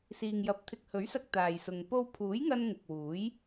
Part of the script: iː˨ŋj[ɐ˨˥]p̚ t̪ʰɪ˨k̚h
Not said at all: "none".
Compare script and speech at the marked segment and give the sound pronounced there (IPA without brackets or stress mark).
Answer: ɐ˨˥